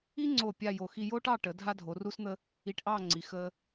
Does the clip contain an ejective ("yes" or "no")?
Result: no